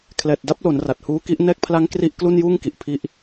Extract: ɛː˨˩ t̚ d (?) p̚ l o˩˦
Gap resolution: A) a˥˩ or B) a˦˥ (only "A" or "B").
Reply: B